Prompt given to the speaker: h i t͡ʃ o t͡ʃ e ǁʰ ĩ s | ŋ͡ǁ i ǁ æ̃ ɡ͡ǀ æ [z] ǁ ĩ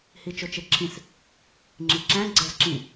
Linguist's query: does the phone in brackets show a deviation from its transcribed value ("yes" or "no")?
no